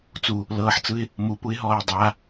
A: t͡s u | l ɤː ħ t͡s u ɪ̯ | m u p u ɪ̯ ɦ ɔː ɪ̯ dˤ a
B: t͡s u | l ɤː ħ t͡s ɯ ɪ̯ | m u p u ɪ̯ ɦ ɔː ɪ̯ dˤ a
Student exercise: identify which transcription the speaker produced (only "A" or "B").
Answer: B